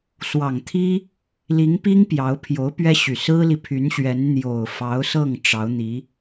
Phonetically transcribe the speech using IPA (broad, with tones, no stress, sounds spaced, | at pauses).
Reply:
s w ɑ˨˩ ŋ t̪ʰ i˥ | l i˧˥ ŋ p i˥ ŋ p j ɑ˧˥ ʊ̯ pʰ j o˧˥ ʊ̯ p ɥ ɛ˥ ɕ y˨˩ s ɹ̩˥ l i˨ pʰ y˧˥ n ɕ ɥ ɛ˧˥ n n̪ j o˨˩ ʊ̯ f ɑ˧˥ ʊ̯ s ɤ˥˩ ŋ ʈ͡ʂ ɑ˧˥ ʊ̯ n̪ i˧˥